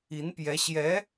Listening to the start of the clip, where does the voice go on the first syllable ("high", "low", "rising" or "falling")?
rising